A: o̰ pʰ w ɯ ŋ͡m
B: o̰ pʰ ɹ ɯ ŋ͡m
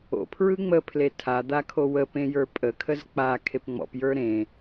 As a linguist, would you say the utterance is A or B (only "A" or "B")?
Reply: B